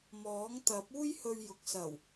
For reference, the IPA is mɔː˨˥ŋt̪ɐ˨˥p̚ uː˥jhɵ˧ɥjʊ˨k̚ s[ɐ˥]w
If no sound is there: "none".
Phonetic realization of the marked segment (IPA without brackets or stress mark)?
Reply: ɐ˨˩